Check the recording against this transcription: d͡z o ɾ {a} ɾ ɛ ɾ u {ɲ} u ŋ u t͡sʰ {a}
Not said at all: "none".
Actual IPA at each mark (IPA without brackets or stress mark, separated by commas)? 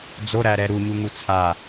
æ, ɲ, a